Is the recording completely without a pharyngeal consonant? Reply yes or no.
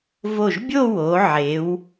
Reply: no